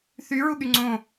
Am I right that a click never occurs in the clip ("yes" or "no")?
no